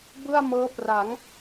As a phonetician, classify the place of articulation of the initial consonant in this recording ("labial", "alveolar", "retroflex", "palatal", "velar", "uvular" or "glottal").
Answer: labial